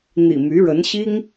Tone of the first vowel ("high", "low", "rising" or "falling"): low